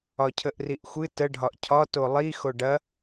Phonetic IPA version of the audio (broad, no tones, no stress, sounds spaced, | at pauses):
ɒ cʰ ə ʔ r i ʔ xʷ ɨ t ə ɖʱ ɒ ʔ cʰ ɒ t o lˠ i x o ɖ ɐ